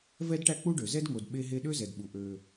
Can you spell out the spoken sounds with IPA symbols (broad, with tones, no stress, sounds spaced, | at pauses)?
v ɛ˦ d ʈ æ˦ k͡p u˦ ɖ ø˨ z ɛ˦ d ŋ o˨ d ɓ e˦ ɦ e˦ ɗ ø˦ z ɛ˨ d ɓ u˨ ʔ ø˦